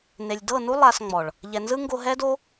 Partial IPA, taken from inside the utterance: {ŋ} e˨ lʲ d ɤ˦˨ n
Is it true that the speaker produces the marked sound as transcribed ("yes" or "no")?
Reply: no